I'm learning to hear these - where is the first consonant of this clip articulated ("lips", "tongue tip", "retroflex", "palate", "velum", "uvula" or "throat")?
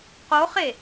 uvula